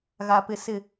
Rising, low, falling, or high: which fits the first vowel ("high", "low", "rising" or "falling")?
low